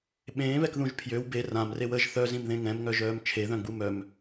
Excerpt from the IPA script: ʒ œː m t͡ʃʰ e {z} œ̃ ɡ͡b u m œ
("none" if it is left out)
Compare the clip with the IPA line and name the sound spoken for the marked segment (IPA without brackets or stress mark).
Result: ð